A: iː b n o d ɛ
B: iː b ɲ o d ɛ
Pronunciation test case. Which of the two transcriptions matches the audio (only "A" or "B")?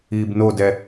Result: A